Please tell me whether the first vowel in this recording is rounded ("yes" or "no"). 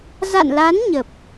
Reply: no